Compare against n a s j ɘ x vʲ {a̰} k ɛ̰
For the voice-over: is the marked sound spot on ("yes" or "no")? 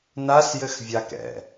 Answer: no